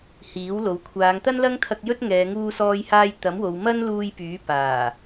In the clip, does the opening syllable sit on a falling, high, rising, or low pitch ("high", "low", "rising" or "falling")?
rising